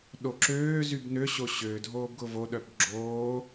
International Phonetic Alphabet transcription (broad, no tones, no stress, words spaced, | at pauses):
ɗoǁøːzyb nøɕo ɕø dʱoːbɡʊvoɗœb ɡ͡ǁoː